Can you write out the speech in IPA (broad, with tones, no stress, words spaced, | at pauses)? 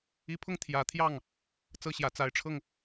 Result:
i˧˥pʰʊ˥ŋ t̪ʰjä˨˩t̪ʰjɑ˥˩ŋ | t͡sɤ˥ɕjä˨˩ t͡sa˧˥ɪ̯ʈ͡ʂʰɤ˥˩ŋ